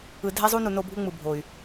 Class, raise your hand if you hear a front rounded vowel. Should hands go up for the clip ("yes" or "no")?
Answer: yes